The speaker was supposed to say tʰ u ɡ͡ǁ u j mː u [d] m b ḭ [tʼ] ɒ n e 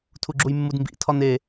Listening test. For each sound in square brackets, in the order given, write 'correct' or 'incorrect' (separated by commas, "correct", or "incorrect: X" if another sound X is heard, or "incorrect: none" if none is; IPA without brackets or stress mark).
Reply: correct, incorrect: tʰ